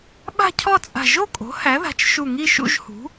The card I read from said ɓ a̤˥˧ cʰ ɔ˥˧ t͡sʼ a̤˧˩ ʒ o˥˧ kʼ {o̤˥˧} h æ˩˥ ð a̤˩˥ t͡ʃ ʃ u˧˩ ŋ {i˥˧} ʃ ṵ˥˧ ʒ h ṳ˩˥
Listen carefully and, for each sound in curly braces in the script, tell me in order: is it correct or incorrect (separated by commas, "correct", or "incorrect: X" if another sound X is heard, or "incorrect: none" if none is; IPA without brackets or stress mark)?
incorrect: o̤˩˥, correct